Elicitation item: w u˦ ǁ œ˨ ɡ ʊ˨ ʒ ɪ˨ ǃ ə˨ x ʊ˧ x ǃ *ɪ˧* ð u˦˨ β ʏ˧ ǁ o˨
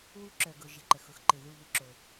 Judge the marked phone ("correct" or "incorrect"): incorrect